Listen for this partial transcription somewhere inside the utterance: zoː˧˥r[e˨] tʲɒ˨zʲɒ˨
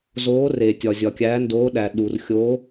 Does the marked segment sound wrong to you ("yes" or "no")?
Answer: no